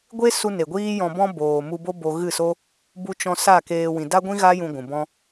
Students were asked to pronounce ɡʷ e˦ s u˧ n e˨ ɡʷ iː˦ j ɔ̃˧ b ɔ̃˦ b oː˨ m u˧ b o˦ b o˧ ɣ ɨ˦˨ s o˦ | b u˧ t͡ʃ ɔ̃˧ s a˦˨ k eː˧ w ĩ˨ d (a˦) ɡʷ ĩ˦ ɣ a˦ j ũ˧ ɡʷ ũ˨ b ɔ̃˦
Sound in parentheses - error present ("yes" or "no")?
no